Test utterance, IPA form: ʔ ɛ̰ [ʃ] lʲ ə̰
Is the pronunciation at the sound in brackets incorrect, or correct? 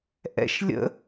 correct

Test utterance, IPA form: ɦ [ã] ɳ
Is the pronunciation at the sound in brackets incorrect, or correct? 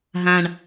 correct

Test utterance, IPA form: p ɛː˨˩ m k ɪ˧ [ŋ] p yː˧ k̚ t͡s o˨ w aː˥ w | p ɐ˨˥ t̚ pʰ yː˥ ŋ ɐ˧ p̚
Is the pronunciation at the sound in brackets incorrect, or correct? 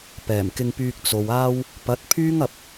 correct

